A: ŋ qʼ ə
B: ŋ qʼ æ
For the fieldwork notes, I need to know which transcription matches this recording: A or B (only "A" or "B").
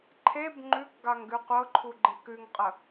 A